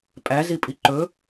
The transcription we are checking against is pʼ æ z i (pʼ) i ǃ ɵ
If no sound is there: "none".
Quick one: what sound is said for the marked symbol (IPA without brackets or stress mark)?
pʼ